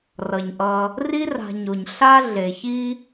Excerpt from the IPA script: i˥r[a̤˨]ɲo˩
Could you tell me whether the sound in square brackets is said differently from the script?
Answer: no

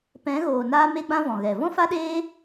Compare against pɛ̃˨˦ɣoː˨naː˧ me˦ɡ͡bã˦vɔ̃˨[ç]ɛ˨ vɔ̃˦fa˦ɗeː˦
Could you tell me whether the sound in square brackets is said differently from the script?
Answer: yes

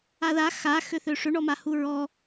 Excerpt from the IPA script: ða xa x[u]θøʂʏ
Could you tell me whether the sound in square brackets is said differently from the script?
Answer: yes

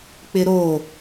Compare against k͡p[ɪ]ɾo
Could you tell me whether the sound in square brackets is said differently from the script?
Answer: no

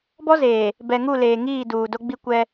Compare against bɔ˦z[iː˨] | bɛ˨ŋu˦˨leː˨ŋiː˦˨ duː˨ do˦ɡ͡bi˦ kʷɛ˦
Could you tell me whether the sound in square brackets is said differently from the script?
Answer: yes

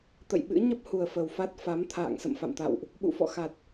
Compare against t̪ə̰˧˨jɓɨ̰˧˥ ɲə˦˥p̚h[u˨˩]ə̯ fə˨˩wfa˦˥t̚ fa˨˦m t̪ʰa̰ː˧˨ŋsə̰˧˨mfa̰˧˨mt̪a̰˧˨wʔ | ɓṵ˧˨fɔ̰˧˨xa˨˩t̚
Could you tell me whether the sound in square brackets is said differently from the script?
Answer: no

